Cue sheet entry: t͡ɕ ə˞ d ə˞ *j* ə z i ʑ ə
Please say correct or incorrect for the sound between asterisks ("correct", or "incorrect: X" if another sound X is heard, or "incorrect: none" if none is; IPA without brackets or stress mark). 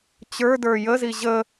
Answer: correct